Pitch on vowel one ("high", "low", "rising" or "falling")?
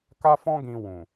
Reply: high